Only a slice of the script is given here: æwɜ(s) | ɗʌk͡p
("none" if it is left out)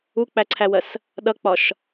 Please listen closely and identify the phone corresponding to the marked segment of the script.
s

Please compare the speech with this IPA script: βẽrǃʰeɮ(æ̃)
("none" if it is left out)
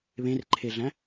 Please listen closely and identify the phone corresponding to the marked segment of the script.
æ̃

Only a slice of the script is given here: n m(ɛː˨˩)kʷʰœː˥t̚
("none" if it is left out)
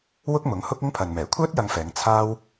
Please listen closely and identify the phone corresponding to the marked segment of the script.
ɛː˨˩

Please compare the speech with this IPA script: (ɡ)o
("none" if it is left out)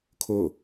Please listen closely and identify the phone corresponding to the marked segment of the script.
kʰ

